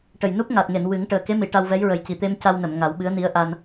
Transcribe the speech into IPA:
ʈ ə˨˩ j n u˦˥ p̚ ŋ a˨˩ t̚ ŋ e˨˩˨ n w ɨ˨˩˦ ŋ ʈ əː˨˩ k e˧˥ m i˨˩˨ ʈ a˧ w v ɛ˧˥ j ɹ ə˨˩ j c i˨˩ t̪ e˧ m c a˧ w n ə˨˩˨ m ŋ a˨˩˦ w ɓ ɨ˧˥ ə̯ n i˧˥ ə̯ ʔ a˧ n

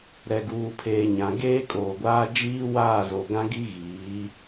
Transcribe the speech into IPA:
ɾ ɛ˨ ɡ uː˨ pʰ eː˨ ɲ ã˨ ɡ eː˦ kʼ oː˨ ɡʷ aː˦ d͡ʒ iː˦ w aː˦˨ z o˨ ɡ ã˦ ɡ i˦ ɣ iː˨˦

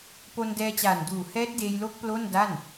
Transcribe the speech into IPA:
p o˧ n d ɛː˧ t͡ɕ aː˨˩ n d uː˨˩ h ɛː˦˥ t̚ d eː˧ j l o˦˥ k̚ p l o˥˩ n d a˥˩ n

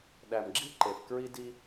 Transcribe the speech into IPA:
ɗ æ˨ m ɡ͡ǁ i˦ ǃ e˨ f k ɹ i˦ d i˦

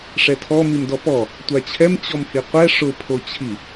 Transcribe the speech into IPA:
ʂ ɛ tʰ ɔ m i m d ɔ p ɔ | tʷ a t͡ɕʰ ɛ m t͡ɕ ɔ m h i qʷ ɛ ʂ ʊ pʰ o t͡ɕʰ i

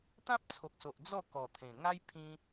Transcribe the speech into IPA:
t̪ ã˦ p̚ t͡sʰ o˨ k̚ s o˨ ʔ d͡z ɔ˥˧ k ɔ˨˩ t̪ʰ ẽ˨˩ ŋ a˦ j pʰ ĩ˧

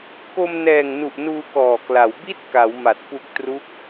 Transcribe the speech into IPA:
k o˧ m n ɛː˨˩ ŋ n u˨˩ ʔ n uː˧ k ɔː˨˩ k l a˩˦ w b i˥˩ t̚ k a˩˦ w m a˨˩ t̚ p u˨˩ k̚ t r u˦˥ k̚

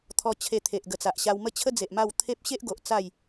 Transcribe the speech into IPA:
t̪ʰ ɔ˧ t͡ɕʰ e˧ t̪ʰ e˨ ʔ ɡ ə˨˩ t͡s a˨ ʔ ɕ a˧ w m ə˥˧ t͡ɕʰ ə˦ d͡z e˨ ʔ m a˥˧ w t̪ʰ e˦ p̚ ɕ e˦ ʔ ɡ o˨ ʔ t͡s a˥˧ j

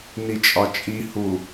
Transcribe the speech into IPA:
n i t͡ʃʼ ɒ t͡ʃʼ i h u

